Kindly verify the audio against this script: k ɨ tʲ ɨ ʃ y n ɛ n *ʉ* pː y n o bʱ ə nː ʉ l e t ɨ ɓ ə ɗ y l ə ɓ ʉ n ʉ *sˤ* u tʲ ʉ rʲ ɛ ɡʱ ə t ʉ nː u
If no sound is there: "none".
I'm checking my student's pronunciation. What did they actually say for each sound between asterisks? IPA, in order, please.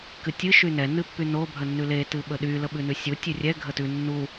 ɨ, sʲ

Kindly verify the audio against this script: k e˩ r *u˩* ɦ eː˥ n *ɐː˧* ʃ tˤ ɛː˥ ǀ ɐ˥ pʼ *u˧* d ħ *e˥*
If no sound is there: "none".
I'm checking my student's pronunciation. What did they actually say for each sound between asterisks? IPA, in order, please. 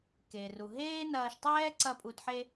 u˩, ɐː˧, u˧, e˥

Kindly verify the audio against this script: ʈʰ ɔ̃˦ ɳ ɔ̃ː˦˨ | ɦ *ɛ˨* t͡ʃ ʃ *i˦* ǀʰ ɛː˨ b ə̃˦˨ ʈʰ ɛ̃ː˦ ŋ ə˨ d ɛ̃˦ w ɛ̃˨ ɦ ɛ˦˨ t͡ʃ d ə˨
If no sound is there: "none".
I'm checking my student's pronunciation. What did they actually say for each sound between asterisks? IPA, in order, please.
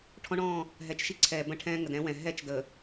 ɛ˨, i˦

